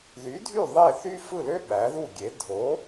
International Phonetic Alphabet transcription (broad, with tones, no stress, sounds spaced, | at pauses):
ð y˩˥ dʱ y˥˩ ðˤ e˥˩ θ y˥ f ɯ˥˩ l ø˥ ɓ æ˩˥ ð u˥˩ ɡʲ e˩˥ dʱ o˩˥